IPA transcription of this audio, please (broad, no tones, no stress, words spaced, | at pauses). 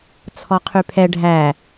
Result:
t͡sʰɔqʰypʰɛ ɖʱæ